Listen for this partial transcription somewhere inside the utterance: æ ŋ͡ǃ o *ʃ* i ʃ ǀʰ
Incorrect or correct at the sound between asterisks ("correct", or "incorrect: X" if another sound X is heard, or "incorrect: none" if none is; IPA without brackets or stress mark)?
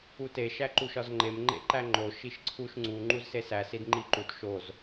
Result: correct